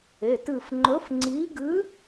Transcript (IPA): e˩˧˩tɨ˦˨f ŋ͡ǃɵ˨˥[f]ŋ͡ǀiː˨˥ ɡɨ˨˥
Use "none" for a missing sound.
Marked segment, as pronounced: f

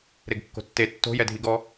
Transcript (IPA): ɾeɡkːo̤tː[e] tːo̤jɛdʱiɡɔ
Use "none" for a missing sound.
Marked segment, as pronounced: e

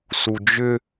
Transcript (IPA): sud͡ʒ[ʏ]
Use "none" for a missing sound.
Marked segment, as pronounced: ʏ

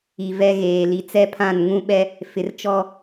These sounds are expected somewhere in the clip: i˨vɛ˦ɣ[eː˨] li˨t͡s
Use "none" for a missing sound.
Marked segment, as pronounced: eː˨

